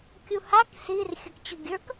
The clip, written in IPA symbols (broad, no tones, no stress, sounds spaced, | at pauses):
kʲ u h a k s i r xʲ ə k t͡ɕ ʊ ɡʲ ə˞ k